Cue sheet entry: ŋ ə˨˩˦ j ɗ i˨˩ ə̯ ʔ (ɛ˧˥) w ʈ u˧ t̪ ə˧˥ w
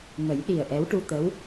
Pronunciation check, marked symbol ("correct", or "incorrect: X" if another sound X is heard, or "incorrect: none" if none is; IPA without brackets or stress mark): correct